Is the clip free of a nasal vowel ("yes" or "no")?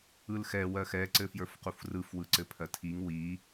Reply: yes